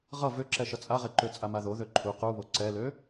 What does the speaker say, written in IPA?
ʁʌ vøǁɛ ʃʌt͡sʼaʁeǃø t͡sʼamaðo ðøǃʰu quβo ǀɛlø

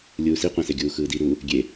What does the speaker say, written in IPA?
lʲuːsiqʷɛ̃se ɡʲuːxɯːdi ɾu | ɡʲe

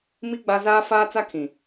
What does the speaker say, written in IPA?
mi˦ ɡ͡ba˦ zaː˦faː˦ t͡sa˦kʰĩ˨

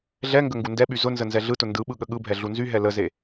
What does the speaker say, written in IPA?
ɮɛŋɡə ŋɡundɛɓy zʊnzə nzɛɮɯtʊ ndɯɓɯ ɠəɠɯbʱɛ ɮunzyɦɛ ləze

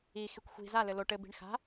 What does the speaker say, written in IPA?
i xikʷxʷi̤ za lɘlo ʈɘ bi̤ɳxa̤

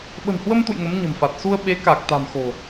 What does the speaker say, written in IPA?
ɓə̤˨˩nhwə˧mt̪ṵ˧˨j ŋə˨˦mɲə̤˨˩mfa˨˩t̚ su˧ə̯ɓe˨˦ka˨˩k̚t̪a̤˨˩m xo̤˨˩

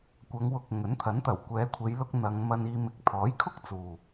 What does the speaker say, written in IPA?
kʷɐ˨˧ŋwʊ˨k̚ ŋɵ˨˥nt̪ʰɐ˨˥nt̪ɐ˨˩w kʷɛː˨˧kʷʰe˨˧jlʊ˧k̚ n̪ɐ˨˧ŋ mɐ˧niː˧ mɪ˨˥k̚t̪ʰɔː˨˥j kʰʊ˥k̚t͡suː˨

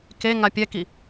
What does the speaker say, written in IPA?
keŋa pʲɛki

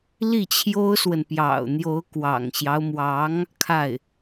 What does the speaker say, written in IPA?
li˥˩t͡ɕʰjo˥ʊ̯swə˨n pjɑ̰˨˩ʊ̯n̪jo˧˥ʊ̯ kwɑ̰˨˩ŋɕjɑ˦ʊ̯mwɑ˧˥ŋ | kʰa˥˩ɪ̯

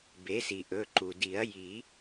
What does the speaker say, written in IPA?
be˩˥si˩ ʔɵ˩˧˩ ǃu˩di˨˩˦ɐ̯ ji˨˩˦

